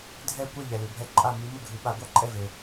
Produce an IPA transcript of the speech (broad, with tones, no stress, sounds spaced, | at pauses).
dʱ ɛ˥˨ kʷ ɛ˥˨ ʎ ɛ˩ l ʉ˩ bʱ ɛ˧˥ ǃʼ a˥˨ m ʉ˧˥ m ɵ˥˨ ɡʱ ʉ˨˩˦ ɓ a˨˩˦ ɡʷ a˥˨ ǃʼ ɛ˥˨ v e˩